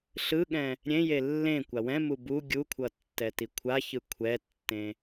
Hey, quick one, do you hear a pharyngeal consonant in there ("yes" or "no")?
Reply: no